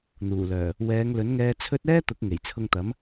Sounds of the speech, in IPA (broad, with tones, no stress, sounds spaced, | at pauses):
n̪ uː˨˩ l œː˨˩ | w ɛː˨˧ ŋ l ɵ˨˥ n ŋ ɛː˧ t͡sʰ ɵ˥ t̚ ɛː˥ t̪ ʊ˨˥ k̚ ŋ e˨˩ j t͡sʰ ʊ˧ ŋ t̪ ɐ˨˥ m